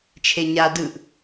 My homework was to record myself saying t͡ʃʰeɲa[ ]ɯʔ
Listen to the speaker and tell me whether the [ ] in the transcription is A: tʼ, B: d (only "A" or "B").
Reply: B